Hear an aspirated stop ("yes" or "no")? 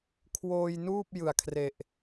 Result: yes